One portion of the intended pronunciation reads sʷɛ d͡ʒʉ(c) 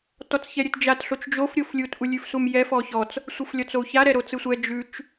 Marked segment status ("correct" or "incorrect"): incorrect